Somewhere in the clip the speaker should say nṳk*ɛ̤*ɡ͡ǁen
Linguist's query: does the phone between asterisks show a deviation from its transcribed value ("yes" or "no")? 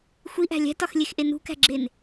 yes